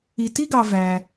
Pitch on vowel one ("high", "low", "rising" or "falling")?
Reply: low